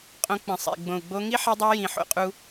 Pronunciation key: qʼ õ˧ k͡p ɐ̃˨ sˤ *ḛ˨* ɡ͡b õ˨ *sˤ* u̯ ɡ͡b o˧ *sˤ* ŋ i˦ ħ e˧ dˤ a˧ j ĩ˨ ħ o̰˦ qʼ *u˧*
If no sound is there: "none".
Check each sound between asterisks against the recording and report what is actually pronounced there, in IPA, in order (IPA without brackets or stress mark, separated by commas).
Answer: ḛ˨, none, none, u˧